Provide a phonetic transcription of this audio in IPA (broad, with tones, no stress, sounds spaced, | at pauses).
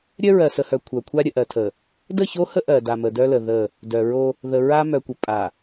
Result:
ɾʲ œ˦ ɹ ɜ˨ s ə˨ h œ˨ kʷʰ œ˨ kʷʰ a˦ ɾʲ ə˨ ʔ ɜ˨ tʰ ə˨ | d ə˦˨ ç o˦ h ə˦ ʔ ɜ˨ d a˨ m ə˨ d œ˦ l ə˨ ð ə˦˨ | d œ˨ ɹ o˦ | ð ə˨ ɹ a˦ m œ˨ kʷ ə˨ pʼ a˨